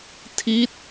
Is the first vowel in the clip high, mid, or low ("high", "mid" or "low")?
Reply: high